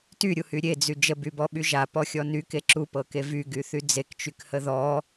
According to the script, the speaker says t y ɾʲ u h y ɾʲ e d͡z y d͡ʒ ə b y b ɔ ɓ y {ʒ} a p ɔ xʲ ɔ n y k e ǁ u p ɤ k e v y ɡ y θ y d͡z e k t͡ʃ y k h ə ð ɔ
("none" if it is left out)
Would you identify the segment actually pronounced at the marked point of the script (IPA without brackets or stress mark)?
ʒ